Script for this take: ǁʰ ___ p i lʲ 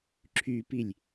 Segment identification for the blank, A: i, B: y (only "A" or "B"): B